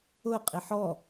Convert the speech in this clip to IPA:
ʊ qʼiħɔ

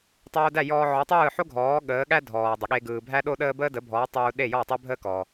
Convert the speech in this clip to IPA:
tˤoː˧dæ˥˩jɔː˧ ʕɔ˩˥tˤɯː˥˩ħo˥ ɡʱɔː˩˥ ɠəː˩˥ɠæ˥ dʱɔː˩dˤə˩ɠe˧ ɡɯː˩ bʱæ˥ɗo˥ɗəː˥ bəː˥də˩˥bʱɔː˩˥ tˤuː˧ɗe˥˩jɔ˥˩ tˤe˥bʱəː˥kɔː˩

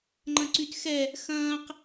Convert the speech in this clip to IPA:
ŋ͡ǃɐ̃ǀytxɛ | xɐ̃ːq

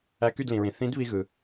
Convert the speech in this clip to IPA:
æ˧ky˥˩dlĩ˩ɹĩ˩ θĩ˨˥d βi˧ɣɯ˩

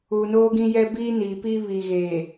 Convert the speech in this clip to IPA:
uː˨noː˦ɡĩ˦jɛ˦ biː˦niː˨pi˦ βiː˨ɣeː˨

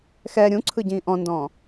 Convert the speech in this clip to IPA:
xɛ ɾʲũǀʰɯ ɟĩːʔɔ̃ndɔ̃ː

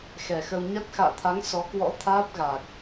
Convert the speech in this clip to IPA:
xɛ˨˩xə˧w ɲa˦˥t̚ xa̰ː˧˨t̪ʰa˨˦ŋ sɔ˨˦kwɔ̰˧˥ t̪ʰaː˦˥p̚ɣaː˨˩k̚

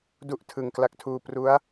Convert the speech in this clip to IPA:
du˥˩ʔ tʰɯ˨˩ŋ kla˦˥k̚tʰuː˧ pru˦˥a̯

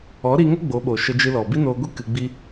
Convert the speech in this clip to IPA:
ɔ˨˦ɾi˧ŋə˦ ɡ͡bo˨˦ɓo˨ ʃə˧d͡ʒɨ˧lɔ˨ bi˦noː˧ɡʷi˦ kɨ˧ɡ͡bi˦

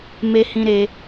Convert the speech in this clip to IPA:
me˦hĩ˦ɾe˦

